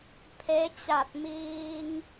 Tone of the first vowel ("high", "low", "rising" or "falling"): rising